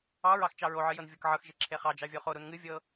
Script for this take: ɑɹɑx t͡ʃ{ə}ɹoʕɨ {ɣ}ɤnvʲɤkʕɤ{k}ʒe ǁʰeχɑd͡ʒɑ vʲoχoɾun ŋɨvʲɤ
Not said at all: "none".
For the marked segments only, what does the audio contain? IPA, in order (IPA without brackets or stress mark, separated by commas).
ɑ, j, x